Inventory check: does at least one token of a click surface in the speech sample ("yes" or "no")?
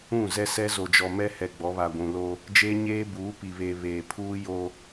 no